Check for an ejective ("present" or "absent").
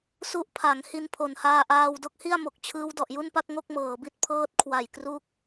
absent